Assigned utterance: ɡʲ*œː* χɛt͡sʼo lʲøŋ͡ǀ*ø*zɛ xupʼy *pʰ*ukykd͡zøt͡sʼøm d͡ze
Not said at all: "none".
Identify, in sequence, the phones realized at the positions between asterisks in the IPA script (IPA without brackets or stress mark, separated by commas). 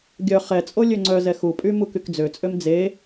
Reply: œ, œ, m